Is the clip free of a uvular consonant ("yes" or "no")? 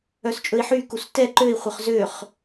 no